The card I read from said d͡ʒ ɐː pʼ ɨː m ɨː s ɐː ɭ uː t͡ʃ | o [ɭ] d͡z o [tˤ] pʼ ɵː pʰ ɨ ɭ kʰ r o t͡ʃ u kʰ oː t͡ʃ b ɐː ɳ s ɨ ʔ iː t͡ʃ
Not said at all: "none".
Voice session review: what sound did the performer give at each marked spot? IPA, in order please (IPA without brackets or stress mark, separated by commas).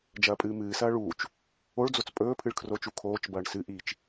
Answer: ɭ, t͡s